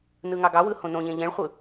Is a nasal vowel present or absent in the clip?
present